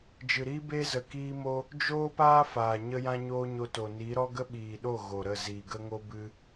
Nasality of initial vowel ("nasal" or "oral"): oral